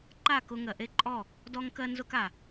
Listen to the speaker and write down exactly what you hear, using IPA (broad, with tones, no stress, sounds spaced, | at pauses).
ǃ a˦˨ k ʊ˧ ŋ ɜ˨ ʔ e˦ ǃʼ ɔ˦˨ | d ɔ˦ ŋ k ɜ˦ n z ʊ˦ k a˨